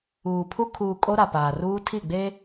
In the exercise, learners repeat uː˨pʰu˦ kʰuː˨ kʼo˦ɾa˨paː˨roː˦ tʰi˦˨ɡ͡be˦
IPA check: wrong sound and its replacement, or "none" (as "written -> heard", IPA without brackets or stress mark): oː˦ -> uː˦